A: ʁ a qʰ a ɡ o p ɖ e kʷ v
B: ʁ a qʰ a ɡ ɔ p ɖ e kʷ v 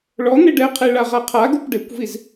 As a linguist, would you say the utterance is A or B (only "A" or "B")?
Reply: A